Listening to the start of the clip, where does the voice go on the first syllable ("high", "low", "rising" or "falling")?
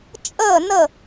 falling